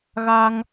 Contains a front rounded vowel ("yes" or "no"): no